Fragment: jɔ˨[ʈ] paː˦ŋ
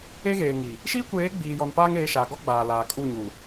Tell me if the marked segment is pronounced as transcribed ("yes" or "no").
no